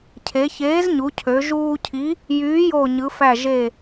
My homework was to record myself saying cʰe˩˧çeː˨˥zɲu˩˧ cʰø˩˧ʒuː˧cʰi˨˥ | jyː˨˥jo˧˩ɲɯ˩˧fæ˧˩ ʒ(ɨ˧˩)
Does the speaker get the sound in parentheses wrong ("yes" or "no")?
yes